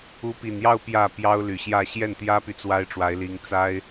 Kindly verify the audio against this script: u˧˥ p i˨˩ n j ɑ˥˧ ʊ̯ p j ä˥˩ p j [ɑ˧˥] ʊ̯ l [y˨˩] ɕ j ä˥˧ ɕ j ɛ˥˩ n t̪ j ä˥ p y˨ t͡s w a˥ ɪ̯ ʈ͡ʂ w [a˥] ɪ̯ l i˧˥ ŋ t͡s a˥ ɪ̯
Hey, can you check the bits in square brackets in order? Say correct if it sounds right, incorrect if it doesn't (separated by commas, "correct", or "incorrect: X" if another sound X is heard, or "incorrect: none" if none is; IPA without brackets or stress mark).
incorrect: ɑ˥, correct, incorrect: a˧˥